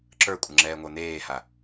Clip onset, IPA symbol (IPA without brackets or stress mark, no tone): ǁ